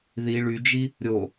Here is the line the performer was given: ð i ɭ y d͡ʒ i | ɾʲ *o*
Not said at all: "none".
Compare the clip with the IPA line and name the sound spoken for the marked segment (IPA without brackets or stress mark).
o